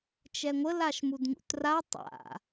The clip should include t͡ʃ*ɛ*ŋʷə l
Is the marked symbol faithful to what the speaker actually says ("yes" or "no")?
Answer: yes